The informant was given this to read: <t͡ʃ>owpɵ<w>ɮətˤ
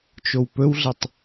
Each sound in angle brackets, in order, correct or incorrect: correct, correct

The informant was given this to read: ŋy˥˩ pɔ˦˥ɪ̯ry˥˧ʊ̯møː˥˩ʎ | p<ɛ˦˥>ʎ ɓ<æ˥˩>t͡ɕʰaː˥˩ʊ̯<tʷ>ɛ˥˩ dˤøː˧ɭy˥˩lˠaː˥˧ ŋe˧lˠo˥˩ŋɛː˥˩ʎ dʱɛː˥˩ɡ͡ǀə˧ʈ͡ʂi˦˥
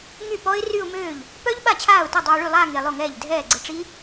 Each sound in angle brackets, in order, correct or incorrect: incorrect: œ˦˥, incorrect: a˥˩, incorrect: t

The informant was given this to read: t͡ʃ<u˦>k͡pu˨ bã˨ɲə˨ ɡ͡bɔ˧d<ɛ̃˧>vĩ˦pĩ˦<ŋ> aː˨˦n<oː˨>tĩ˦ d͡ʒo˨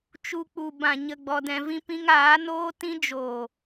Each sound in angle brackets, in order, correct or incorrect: incorrect: u˧, correct, correct, incorrect: oː˦

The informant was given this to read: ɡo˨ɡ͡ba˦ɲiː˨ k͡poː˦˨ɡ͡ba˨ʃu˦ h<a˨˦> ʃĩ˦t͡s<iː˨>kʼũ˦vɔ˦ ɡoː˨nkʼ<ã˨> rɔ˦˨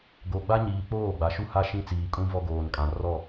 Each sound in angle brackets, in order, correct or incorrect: incorrect: a˦, correct, correct

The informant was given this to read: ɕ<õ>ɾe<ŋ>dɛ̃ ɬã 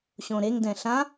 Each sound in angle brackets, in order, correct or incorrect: correct, correct

